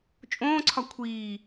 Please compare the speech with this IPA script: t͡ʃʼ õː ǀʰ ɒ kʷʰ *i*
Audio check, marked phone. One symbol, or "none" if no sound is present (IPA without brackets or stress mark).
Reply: iː